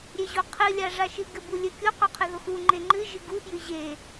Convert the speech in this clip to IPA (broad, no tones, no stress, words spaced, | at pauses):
ɾʲeʑoqʰɨ lʲaʐaʃɨ ɡɘbulʲɘ kʲo qɔqʰɨðoxu ŋ͡ǃeŋ͡ǃɨ ʒɨɡu fjɨʑe